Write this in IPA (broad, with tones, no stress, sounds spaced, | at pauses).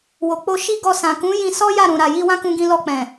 w o˨ k͡p o˧ ʃ i˦ ɡ ɔ˧ s ã˨ k ũ˨˦ j ĩ˧ s ɔ˦ j a˦˨ ɾ ũ˨ ɾ a˨ j i˧ w ã˦ k ũ˧ ɡ ĩ˧ l ɔ˧ k͡p ɛ̃˨